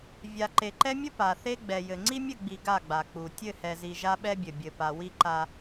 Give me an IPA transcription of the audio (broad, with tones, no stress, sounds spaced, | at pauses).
vʲ a˨ ǃ e˨ ǃ ɛ˦ mʲ ɘ˦ p a˨ θ e˦ ɡ͡b ɛ˨ j ɘ˨ ŋ͡ǀ i˦ mʲ ɘ˦˨ ɡ͡b i˨ ɡ a˦˨ ɡ͡b a˨ k͡p u˨ tʲ ɘ˦˨ h ɛ˨ z i˨ ʒ a˦ ɓ ɛ˦ bʲ ɘ˨ bʲ ɘ˨ p a˨ w i˦ ǃ a˦